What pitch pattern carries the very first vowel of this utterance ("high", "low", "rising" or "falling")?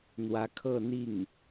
rising